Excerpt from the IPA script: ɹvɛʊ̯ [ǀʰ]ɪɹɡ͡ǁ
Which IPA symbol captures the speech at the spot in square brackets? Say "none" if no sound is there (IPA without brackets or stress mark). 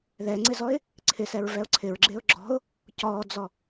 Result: ǀʰ